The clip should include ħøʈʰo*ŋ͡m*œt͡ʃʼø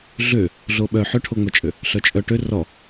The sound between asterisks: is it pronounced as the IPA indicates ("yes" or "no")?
yes